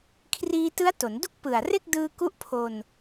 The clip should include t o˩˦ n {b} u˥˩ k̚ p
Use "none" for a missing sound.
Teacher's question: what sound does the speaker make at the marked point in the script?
d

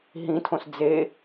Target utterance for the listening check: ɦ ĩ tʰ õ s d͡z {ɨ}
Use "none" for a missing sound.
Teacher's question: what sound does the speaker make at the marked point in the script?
e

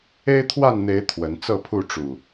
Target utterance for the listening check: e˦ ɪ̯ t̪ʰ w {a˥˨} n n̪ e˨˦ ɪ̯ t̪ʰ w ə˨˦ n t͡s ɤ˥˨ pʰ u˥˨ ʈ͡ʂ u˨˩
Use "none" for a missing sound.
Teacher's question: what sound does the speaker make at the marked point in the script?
a˥˨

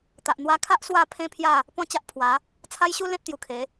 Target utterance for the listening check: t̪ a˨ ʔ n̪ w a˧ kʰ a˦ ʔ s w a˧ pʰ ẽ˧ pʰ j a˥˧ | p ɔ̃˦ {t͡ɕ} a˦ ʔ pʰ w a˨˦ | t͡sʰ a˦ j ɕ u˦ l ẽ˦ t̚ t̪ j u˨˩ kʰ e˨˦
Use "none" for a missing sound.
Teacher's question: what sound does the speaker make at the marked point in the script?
t͡ɕ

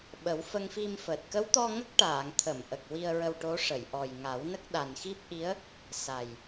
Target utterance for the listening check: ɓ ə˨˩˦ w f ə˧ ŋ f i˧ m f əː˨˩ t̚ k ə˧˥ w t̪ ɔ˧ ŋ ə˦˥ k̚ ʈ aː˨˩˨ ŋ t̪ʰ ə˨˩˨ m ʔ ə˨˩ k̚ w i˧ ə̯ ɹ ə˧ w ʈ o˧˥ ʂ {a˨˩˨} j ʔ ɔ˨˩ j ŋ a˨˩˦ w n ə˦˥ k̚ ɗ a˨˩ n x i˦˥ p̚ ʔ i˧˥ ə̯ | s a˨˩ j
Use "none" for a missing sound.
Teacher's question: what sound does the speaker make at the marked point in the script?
ə˨˩˨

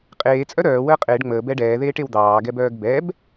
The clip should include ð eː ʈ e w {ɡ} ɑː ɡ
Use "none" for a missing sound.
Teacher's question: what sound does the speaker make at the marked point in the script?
d̪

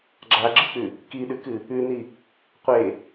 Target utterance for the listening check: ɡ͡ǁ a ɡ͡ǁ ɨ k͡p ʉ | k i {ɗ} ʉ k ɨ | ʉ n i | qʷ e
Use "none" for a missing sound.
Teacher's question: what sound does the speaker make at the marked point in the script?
ɗ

